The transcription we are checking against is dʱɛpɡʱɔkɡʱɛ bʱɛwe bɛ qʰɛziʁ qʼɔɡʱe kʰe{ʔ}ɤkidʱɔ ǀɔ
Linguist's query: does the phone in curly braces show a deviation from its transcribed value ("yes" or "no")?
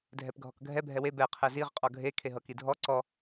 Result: yes